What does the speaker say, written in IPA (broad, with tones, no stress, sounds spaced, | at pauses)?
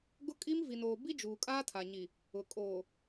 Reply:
ɡ ʊ˦ kʼ i˦ m v i˨ n oː˨ b i˦ d͡ʒ uː˨ kʼ aː˦ tʰ a˨ ɲ i˨ | ʊ˨ kʼ oː˨